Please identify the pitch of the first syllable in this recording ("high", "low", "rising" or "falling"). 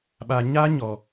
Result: low